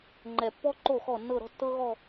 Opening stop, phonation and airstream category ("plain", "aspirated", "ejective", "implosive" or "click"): click